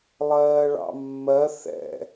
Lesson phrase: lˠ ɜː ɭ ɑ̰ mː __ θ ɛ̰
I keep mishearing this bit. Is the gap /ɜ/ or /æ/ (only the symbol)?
ɜ